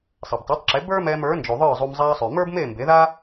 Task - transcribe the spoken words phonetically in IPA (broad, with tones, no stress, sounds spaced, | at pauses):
sˤ ɛ˩ b tˤ ɛ˩˥ tˤ ǁ e˩˥ b ə˞˥ m ɛː˧ m ə˞˩˥ n d͡ʒ u˩ ðˤ ə˞˥˩ zˤ u˧ m zˤ aː˧ sˤ y˩ m ə˞˥ b m eː˥˩ m b e˩˥ ð aː˥